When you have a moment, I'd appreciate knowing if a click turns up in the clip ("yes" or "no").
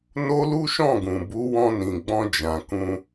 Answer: no